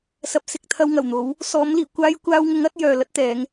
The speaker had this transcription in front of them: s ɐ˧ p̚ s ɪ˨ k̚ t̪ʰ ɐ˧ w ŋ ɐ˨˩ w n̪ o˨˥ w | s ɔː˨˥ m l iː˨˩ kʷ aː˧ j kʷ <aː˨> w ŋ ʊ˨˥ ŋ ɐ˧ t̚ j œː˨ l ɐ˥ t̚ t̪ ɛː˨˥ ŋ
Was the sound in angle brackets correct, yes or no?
no